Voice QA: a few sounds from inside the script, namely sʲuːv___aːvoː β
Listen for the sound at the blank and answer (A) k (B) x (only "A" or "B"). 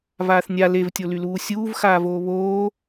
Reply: B